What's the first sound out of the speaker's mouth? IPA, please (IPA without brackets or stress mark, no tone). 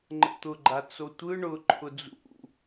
ŋ͡ǃ